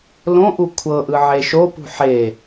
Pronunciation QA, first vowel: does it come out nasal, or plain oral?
nasal